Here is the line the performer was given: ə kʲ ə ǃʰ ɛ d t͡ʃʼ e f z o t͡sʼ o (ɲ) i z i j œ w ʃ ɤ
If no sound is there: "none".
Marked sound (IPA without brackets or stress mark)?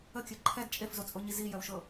ɲ